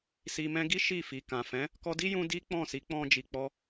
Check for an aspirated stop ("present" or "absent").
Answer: absent